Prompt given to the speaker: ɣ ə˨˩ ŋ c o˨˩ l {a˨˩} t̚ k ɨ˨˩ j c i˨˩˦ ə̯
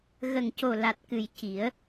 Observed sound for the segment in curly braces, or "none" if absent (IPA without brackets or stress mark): a˨˩